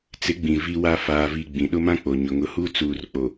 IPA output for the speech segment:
t͡sɪ˨˦ɡ͡bĩ˨ vi˦wa˦ faː˨vi˨ ɡ͡bĩ˨ɗʊ˦mã˦k͡po˨ ɲʊ˨ŋʊ˨˦huː˦ t͡suː˨rk͡po˨

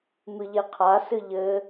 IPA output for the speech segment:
mɨʎeqʰa sɨʎɘ

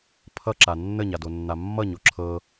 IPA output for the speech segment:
pʰʌǁa nːəɲadonːa mːʌɲo ǁʰɤ

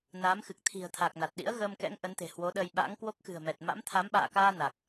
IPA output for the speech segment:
naː˨˦mxɨ˨˩k̚ t̪ʰi̤˨˩ə̯t̪ʰa˨˩k̚ na˨˩t̚ɗḭ˧˥ə̯ɣəː˧mkɛ̰˧˥ŋ ʔə˨˦nt̪e̤˨˩hwo˨˦ɗəː˧j ɓa̰ː˧˥ŋkwo˦˥k̚xɨ̤˨˩ə̯mɛ˨˩t̚ ma̰˧˥mt̪ʰa˨˦m ɓa̰ː˧˨kaː˧ na˨˩k̚

